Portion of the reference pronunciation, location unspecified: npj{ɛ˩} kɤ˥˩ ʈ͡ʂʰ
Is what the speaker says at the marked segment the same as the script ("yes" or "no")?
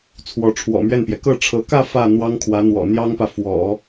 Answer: yes